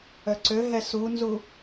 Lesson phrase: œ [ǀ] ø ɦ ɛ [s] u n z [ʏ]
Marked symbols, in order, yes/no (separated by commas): yes, yes, no